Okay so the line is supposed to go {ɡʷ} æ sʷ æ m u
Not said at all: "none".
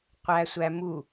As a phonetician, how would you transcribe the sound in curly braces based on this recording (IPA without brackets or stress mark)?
qʷ